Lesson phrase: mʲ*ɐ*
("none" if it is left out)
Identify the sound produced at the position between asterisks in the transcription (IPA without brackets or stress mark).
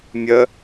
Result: ə